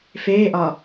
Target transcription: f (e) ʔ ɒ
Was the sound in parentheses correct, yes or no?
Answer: no